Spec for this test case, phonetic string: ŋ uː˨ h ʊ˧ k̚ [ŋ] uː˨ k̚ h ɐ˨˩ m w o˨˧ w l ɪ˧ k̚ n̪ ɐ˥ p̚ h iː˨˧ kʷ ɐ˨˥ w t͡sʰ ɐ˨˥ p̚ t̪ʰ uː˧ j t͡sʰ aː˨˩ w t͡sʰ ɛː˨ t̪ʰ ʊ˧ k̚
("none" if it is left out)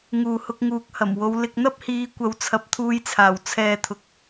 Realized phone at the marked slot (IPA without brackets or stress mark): ŋ